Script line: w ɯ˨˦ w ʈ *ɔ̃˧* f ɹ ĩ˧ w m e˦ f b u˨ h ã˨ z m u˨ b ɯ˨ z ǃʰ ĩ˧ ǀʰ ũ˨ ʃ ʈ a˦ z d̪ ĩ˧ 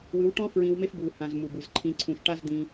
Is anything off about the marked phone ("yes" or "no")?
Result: yes